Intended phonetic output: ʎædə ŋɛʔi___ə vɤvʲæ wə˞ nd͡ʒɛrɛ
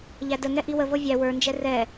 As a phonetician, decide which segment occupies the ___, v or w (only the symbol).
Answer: w